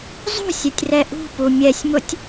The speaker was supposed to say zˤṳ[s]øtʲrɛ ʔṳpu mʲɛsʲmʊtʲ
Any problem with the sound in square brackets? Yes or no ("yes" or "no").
yes